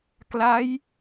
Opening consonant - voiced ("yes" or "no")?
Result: no